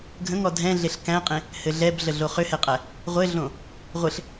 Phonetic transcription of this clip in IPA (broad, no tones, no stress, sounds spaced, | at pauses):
ɡʱ ə̃ ŋ ɔ dʱ ɛ̃ ɮ e ɬ k æ̃ qʼ ẽ | h ɘ ɮ ɛ b ɮ ə ɮ o χ ʏ h ɛ qʼ æ | ʁʷ ɘ ɮ õ | ʁʷ ɘ ɬ